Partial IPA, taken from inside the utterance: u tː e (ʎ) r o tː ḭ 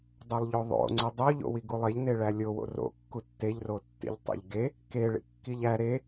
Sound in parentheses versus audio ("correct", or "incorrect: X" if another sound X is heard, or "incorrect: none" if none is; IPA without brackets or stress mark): correct